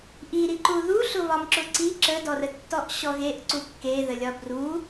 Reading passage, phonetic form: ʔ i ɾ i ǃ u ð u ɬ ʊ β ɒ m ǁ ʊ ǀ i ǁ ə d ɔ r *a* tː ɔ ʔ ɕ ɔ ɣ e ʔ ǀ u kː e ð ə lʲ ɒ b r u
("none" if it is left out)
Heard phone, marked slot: ə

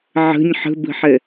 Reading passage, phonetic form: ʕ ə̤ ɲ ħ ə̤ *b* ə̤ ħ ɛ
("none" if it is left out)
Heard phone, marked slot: b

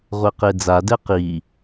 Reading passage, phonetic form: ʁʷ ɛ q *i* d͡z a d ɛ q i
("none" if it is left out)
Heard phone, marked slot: e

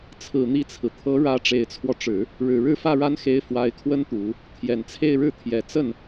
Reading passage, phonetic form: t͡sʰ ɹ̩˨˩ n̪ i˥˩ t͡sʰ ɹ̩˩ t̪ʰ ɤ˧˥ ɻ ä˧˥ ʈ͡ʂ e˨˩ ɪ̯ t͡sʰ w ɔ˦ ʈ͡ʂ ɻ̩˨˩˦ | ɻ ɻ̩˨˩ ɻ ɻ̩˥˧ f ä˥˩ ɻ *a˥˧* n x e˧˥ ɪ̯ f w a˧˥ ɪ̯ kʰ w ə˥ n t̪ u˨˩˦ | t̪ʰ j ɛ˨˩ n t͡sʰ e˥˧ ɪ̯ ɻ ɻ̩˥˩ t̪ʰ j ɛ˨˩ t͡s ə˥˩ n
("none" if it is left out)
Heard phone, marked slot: a˥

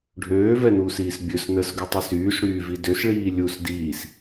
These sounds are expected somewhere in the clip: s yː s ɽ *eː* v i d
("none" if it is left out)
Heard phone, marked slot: yː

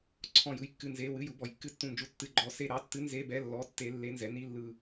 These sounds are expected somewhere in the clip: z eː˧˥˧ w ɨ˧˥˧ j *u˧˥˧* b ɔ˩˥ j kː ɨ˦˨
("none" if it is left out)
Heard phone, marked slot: u˩˥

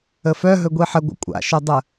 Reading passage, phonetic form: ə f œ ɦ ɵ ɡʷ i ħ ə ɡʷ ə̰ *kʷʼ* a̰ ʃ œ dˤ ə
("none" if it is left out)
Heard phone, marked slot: kʷʼ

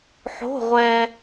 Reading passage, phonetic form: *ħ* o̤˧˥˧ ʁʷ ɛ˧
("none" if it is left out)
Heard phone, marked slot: ħ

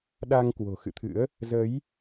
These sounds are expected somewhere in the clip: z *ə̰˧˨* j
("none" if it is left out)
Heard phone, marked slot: ə˨˦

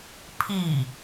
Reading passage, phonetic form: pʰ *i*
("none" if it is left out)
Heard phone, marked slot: i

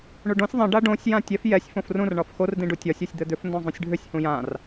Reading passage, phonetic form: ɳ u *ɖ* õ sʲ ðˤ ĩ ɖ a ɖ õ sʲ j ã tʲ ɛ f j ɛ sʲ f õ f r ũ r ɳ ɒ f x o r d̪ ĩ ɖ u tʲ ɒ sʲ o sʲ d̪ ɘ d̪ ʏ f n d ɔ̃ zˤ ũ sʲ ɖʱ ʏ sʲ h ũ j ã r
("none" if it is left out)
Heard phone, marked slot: ɖ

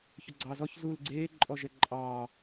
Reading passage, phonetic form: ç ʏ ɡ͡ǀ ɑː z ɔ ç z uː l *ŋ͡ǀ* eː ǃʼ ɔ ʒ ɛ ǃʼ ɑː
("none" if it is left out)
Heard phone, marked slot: ɡ͡ǀ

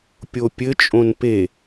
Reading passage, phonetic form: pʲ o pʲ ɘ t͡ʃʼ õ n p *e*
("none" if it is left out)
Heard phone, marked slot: e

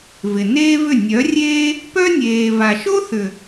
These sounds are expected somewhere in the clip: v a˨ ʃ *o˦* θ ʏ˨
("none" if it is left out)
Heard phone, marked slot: o˦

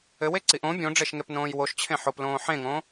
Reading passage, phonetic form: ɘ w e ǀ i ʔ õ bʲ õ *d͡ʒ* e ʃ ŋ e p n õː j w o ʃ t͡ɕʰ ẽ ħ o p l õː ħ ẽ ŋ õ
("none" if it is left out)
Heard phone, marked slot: ɖ͡ʐ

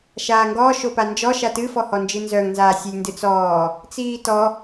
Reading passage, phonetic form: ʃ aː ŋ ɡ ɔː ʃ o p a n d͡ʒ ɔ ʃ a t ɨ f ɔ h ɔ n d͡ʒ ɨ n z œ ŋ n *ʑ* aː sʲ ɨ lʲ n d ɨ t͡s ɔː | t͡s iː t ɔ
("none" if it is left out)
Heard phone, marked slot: z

